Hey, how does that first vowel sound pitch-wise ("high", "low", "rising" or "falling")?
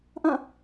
falling